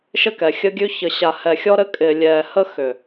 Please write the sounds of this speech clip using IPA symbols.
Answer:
ʃ ɘ˦ k ɛ˨ xʲ ə˦ ɡʲ ʉ˦ ç ə˨ ɕ a˨ h ɛ˨ xʲ ɔ˦ ɾ ɘ˦ kʼ ɪ˨ lʲ ɛ˨ h ə˦ x ʏ˨

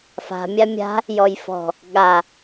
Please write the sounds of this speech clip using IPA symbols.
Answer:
f a̤ mʲ a mʲ a̤ | j ɔ j f ɔ̤ | ɠ a

